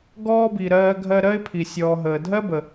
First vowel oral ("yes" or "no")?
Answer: yes